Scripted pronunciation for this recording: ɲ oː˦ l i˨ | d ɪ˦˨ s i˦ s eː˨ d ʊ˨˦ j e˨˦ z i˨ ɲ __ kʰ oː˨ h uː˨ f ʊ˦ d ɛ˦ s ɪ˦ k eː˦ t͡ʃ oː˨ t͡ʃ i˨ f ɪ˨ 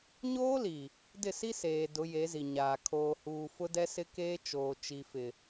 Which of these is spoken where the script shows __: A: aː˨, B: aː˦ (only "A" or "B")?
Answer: A